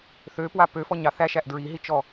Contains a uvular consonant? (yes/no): no